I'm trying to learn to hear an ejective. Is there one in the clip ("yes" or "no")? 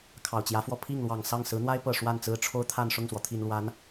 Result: no